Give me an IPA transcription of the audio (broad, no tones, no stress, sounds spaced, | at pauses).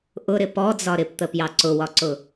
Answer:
ʔ ʊ ɾ ɪ p ɔ d͡z ɒ ɾ ɪ p t̪ ə p j ɑ ǀ ʊ w ɒ ǀ ʊ